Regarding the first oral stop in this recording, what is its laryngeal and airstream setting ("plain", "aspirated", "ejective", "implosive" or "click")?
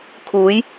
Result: aspirated